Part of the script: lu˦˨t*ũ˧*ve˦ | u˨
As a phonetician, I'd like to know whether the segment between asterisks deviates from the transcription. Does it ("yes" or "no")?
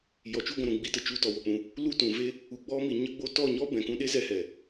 yes